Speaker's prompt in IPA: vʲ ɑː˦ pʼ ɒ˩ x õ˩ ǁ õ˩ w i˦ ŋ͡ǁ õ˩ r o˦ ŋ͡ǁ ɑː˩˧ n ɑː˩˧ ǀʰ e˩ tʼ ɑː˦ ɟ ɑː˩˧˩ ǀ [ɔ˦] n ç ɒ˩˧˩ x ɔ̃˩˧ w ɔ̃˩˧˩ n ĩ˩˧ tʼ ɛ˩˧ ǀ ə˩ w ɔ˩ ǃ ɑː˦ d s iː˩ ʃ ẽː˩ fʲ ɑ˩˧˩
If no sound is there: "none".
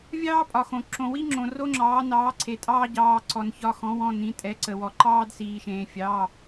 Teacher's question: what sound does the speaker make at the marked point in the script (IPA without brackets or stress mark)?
ɔ˩